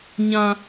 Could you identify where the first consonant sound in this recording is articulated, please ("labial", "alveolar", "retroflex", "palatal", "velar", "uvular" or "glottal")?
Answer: palatal